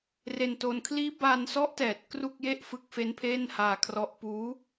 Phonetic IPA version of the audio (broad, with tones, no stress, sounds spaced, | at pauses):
r e˧ n t o˧ n kʰ l iː˦˥ b a˧ n s ɔ˦˥ ʔ t ɛː˨˩ t̚ k r u˥˩ k̚ j e˥˩ ʔ f ɯ˦˥ k̚ f e˦˥ n pʰ eː˥˩ n h aː˧ kʰ r ɔ˦˥ ʔ p uː˦˥